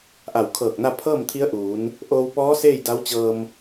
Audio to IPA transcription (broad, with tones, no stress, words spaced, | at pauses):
ʔa˧˩wkʰɤː˧˩k̚na˥˨ pʰɤː˥˨mt̪ʰi˧˥ə̯ʔuː˩˧n | ʔoː˧wpɔː˧˥ seː˥˨jda˧˥wt͡ɕɤː˧m